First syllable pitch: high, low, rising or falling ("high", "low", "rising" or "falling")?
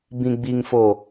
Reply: low